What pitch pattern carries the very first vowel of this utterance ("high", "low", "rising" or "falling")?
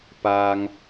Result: high